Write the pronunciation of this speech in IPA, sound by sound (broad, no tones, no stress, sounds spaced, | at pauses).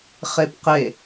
χ e p q e